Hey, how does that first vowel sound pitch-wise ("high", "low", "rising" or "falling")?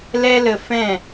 high